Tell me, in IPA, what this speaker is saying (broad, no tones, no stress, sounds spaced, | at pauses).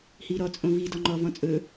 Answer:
h i ɾ ɔ t͡sʼ õ v i d ɔ ŋ͡ǃ ɔ v ɔ̃ t͡sʼ ɵ